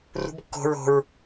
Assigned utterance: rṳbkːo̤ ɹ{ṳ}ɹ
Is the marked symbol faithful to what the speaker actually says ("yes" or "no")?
no